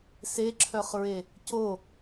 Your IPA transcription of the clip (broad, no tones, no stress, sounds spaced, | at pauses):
s e ǁʰ œ χ ɹ e | c o